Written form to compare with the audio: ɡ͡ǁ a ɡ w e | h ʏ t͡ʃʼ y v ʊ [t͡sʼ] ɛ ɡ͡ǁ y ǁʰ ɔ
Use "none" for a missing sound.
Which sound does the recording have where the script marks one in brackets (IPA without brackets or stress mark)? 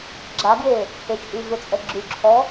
t͡sʼ